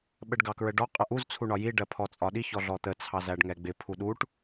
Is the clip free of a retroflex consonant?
no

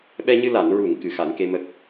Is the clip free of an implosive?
no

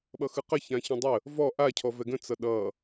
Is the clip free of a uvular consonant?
no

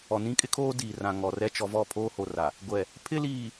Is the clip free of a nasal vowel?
no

